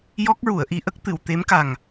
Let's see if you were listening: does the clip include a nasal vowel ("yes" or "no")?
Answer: no